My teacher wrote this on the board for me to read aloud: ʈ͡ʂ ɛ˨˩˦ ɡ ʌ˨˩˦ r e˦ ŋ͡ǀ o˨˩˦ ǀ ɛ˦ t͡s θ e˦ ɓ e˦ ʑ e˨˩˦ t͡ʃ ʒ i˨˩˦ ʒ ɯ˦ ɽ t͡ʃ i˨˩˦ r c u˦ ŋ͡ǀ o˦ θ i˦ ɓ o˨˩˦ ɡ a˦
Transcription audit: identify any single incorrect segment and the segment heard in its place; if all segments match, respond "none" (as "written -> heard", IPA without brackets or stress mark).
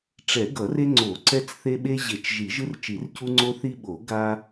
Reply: ɽ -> r